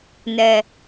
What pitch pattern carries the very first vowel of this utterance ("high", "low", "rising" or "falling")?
low